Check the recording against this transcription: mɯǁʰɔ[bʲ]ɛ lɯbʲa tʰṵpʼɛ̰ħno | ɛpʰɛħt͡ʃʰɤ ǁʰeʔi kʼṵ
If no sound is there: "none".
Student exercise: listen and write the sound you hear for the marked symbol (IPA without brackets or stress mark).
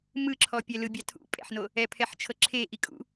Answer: pʲ